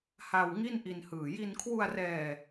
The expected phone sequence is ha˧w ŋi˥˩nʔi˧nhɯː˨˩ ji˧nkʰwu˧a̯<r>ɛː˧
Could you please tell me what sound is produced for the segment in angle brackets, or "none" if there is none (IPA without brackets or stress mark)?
r